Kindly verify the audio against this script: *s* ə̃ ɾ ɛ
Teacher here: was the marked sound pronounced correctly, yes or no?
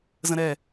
no